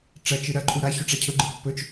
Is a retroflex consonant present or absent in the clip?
present